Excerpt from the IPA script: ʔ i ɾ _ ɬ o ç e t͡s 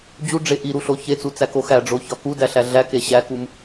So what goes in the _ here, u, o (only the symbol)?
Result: u